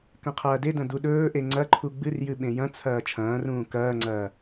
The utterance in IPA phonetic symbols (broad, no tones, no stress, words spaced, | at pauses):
kɐ̃qʰɐːdedɐ̃ duɗɵːʔe ŋ͡ǀɐǃʰu ɡ͡bɨrjɨ ɓẽjɐ̃t͡sʰɐː t͡ʃʰɐ̃ːrũː kɐːŋ͡ǀɐː